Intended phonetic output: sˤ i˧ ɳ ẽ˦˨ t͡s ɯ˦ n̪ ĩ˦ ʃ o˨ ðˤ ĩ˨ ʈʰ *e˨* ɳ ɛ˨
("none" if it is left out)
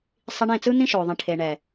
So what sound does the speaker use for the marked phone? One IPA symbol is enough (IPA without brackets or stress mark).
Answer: e˨